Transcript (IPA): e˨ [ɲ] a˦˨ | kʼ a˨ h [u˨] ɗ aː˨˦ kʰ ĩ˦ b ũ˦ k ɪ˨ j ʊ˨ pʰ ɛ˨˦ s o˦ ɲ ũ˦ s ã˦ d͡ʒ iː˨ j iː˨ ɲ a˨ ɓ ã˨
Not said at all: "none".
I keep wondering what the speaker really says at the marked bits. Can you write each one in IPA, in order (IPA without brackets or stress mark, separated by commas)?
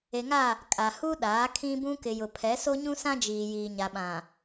ŋ, u˦